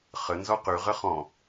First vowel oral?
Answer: yes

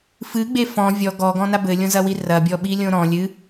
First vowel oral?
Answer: yes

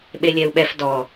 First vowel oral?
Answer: yes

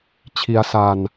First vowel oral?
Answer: yes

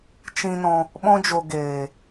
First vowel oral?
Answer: no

